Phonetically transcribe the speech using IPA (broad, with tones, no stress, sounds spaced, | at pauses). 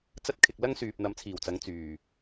t͡s ɐ˥ t̚ kʰ ɪ˨ k̚ l ɐ˥ ŋ s yː˨ p̚ n̪ ɐ˨˧ m t͡sʰ iː˨˩ w t͡s ɐ˨˧ ŋ t͡s yː˨˩